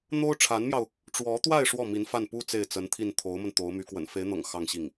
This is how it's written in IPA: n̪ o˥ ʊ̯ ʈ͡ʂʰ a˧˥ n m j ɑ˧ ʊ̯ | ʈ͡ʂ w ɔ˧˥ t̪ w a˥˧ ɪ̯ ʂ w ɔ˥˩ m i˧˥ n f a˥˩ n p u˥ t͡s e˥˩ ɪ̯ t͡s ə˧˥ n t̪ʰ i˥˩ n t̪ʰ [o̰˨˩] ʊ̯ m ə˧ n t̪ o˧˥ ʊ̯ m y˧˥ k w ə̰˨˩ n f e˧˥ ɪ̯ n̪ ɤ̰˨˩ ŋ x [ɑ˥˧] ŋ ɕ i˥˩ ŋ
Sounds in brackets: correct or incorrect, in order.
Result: incorrect: o˧˥, correct

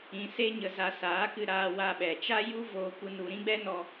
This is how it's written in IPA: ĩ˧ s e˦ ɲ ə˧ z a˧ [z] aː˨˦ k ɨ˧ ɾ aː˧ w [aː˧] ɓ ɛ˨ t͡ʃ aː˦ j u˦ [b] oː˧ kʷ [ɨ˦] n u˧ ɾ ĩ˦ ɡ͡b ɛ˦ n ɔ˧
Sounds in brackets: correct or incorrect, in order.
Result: incorrect: s, incorrect: a˧, incorrect: v, correct

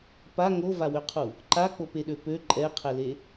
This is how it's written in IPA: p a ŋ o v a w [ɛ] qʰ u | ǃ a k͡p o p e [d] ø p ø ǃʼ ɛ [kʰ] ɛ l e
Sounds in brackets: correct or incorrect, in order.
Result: incorrect: ø, incorrect: ɗ, incorrect: qʰ

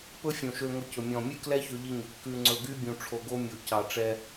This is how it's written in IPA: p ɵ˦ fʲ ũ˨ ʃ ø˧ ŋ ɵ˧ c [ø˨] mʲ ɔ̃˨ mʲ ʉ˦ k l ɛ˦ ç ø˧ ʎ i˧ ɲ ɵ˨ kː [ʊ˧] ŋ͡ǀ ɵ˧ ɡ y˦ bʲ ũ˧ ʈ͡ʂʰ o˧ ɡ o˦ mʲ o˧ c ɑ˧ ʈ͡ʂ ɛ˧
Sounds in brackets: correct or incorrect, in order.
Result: incorrect: ɵ˨, incorrect: ʉ˧

